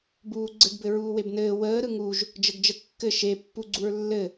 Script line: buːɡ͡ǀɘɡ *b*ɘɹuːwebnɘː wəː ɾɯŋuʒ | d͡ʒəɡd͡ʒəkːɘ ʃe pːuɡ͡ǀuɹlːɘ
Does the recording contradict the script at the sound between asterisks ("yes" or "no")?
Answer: no